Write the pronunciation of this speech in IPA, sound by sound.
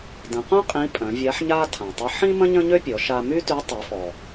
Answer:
d ə̃˩˧ q œ̃˥ qʼ ĩ˧˥ pʼ œ̃˩˧ vʲ a˧˥ ħ ɲ a˥ tʰ ã˩ tˤ ə˧˥ ħ ĩ˥ m ə̃˥ ɲ ə̃˥ ɲ ø˥ pʲ ɔ˩˧ ʃ a˧ m y˥ t y˧˥ tˤ y˩˧ f ɔ˩

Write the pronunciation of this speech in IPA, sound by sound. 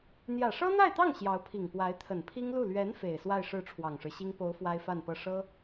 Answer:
n̪ j ä˨˩ ʂ ɤ˥ n̪ a˥˧ ɪ̯ t̪ ɑ˥˩ ŋ ɕ j ɑ˧˥ ʊ̯ pʰ i˨˩ ŋ p w a˧˥ ɪ̯ t̪ʰ ə˨˩ n pʰ i˥ ŋ l u˥˩ l ɥ ɛ˧˥ n f e˨˩ ɪ̯ s w a˥˧ ɪ̯ ʂ ɻ̩˥˩ ʈ͡ʂʰ w ɑ˨˩ ŋ ʂ ɻ̩˦ ɕ i˥ ŋ p o˧˥ ʊ̯ f w a˥ ɪ̯ f a˥˧ n p ɤ˥˩ ʂ ɤ˥

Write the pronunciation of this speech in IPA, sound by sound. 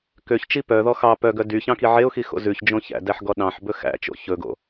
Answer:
k ø ç t͡ʃ i p œ ð ɔ x ɑ p œ ɡ œ d y ç ɑ̃ k i ʕ e ʊ̯ x i x o̰ z ʉ ç d͡ʒ õ ç æ̰ d æ ħ ɡ ɔ ɗ ɑ̃ ħ b ɵ x æ̰ t͡ʃ o̰ ç ɵ ɡ o̰

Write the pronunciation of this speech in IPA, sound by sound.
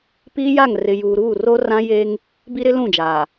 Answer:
p iː˦ j a˦˨ ŋ r ɪ˨ j uː˨ ɾ uː˦˨ r o˦ r ã˦ j e˦ ŋ | b i˦ ɾ ɪ˦ l ũ˦˨ d͡ʒ aː˨

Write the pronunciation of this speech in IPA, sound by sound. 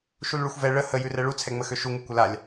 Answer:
ʃ u l ɭ ʉ xʷ v ɛ ɭ ə h ə j ʉ r ɛ ɭ u t͡sʰ ɛ ŋ͡m ə x ø ʃ u ŋ ʉ kʷ ə l a lʲ

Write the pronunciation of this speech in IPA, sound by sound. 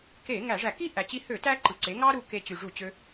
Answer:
k e˧˩˧ ŋ æ˧˩˧ ʐ æ˧˩˧ k i˥ ʔ æ˨˩ t͡ɕ i˧ h ø˧˩˧ t æ˥ ǃ ɯ˨˩ ǀ e˩˥ ŋ ɑ˥ ɾ u˧ k e˧ t͡ɕ y˨˩ ʐ u˧˩˧ t͡ɕ ø˧

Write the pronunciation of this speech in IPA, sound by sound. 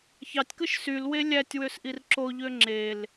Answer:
ç ɑ tʲ k ɯ ʃ s y l w e lʲ æ tʲ w ø s ʔ i r ǁ o ʎ ø ŋ͡ǁ e l

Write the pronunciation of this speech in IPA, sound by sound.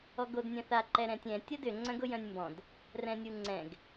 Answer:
ɔ ɡ o d nʲ œ̃ θ a ǃ ɛ ɾ ɛ̃ tʲ ɛ̃ tʲ ɐ d ʏ ŋ͡ǀ œ̃ ɡ ʊ j œ̃ nʲ m b ɔ̃ d | r ɛ̃ nʲ u ŋ͡ǀ ɛ̃ ɡ

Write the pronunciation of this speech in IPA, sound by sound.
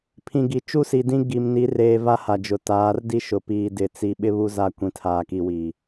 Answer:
pʰ ĩ˨ ɡ i˨˦ t͡ʃ u˦ s i˨ d ĩ˦ ɡ i˨ m n i˨˦ r eː˨ v a˦ h a˨ d͡ʒ ʊ˨ t aː˨˦ r d i˦ ʃ ʊ˨ p iː˨ d ɪ˨ t͡s i˨ ɓ ɪ˦ β u˦ z a˦˨ kʷ ĩ˨ tʰ aː˨ k i˨ w iː˨

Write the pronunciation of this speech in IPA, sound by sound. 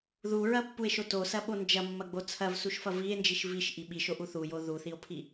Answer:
ð u ɹ ɐ pː u e̯ ʃ o t o s ɐ ɓ o n d͡ʒ ɐ mː ɐ ɡ͡b o t͡sʰ ɐ v s u ʃ f ɐ v i e̯ n d͡ʒ i ʃ v i ʃ ʔ i ɓ i ʃ o ʔ u θ u j o ð u θ i o̯ pʰ i

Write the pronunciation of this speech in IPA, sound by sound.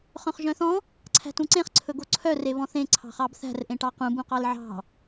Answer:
χ œ̃ χ ʒ œ̃ θ ɔ̃ | ǀʰ æ̤ t ũ ǀ ẽ χ ǀʰ ɵ ɡ o ǀʰ œ r e β ɔ̃ θ ẽ ǀʰ ɑ̤ χ ɑ b θ æ̤ r ʔ ẽ ʈ ɑ q ũ b ũ q ɑ l ʕ ɑ̤

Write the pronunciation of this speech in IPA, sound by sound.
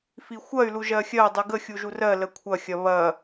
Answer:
f i xʷ ɐ y̯ l u ʒ ɜ xʲ ɜ dˤ y ɡ ə xʲ u ʒ u r ɜ l ə kʷʰ ɐ xʲ ɐ β ɐ

